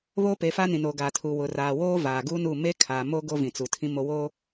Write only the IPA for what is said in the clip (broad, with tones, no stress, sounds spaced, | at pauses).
β oː˦ p e˨˦ f a˦ n ĩ˨ n o˨ ɡ a˨ tʰ u˨ w ʊ˨ r aː˨ w oː˦ v aː˨ ɡ u˦ n u˦˨ m e˦ kʰ aː˨ m o˦ ɡ o˦ v ĩ˨ t͡s u˨ tʰ ĩ˦ m o˦ w oː˦